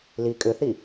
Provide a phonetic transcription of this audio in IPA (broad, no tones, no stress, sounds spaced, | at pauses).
l i kʼ ʏ θ i